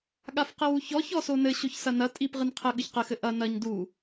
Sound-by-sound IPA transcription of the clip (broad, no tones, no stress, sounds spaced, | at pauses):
ɠ a f q e w u ç ɔ ç ɔ s o n ɘ ɕ o ç s ɐ n ɐ tʼ i p ʁ ɨ n qʰ ɘ ɠ ɨ ç q ɘ x ɘ ʔ ɐ n ɐ ɲ d u